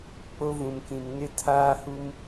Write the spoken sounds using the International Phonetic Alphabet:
k͡p o˦ v ũ˨ m k ĩ˨ m n ɪ˦ tʰ aː˦ h u˦ m

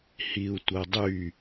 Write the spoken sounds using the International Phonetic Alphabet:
h i u̯ tʷ ɤ dˤ y

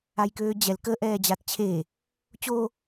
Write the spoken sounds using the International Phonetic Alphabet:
a j k øː d͡ʑ ɛ l k ə ʔ ɛː d͡ʑ a t t͡ɕʰ e | t͡ɕ o

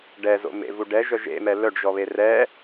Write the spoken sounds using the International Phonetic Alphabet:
ɖ ɛ z o̰ m ḛ v u ɖ ɛ ʒ œ ʒ ḛ m ɛ l œ ɖ ʒ ɔ β e r ɛ

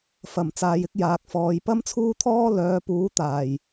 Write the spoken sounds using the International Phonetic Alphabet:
f ɐ˨˩ m t͡s aː˨ j ɪ˧ k̚ j aː˨ k̚ f ɔː˨˧ j p ɐ˥ m t͡sʰ uː˥ t̪ʰ ɔː˥ l œː˨˧ p uː˨˥ t̪ aː˨˩ j

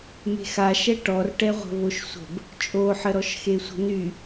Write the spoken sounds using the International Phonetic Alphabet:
m e̤ x a ʃ ɛ ʈ ɔ r ʈ ɛ ʁʷ ə̤ β o ʃ sʷ ə̤ b | t͡ʃʼ o ħ ə ɾ ɔ ʃ x e sʷ ə̤ n y

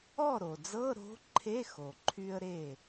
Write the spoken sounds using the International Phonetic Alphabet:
ɔ˥˩ ɾ o˩ d͡z ɤ˧˥˧ ɾ o̤˧˥ ǃʰ e˧˥˧ x o˩ ǃʰ y˥ ə̯ ɾ e˥˩

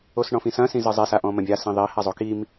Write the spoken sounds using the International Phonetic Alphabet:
o s ɳ ɔ̃ f ĩ s ɐ̃ s ĩ z ɨ zˤ e s a ʔ ɔ̃ m ɐ̃ bʲ a s ĩ ðˤ i h a zˤ o k i m

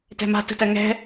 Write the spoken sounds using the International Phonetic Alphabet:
t ɛ̤ m a̤ t ə̤ t ɜ ŋ ɛ̤

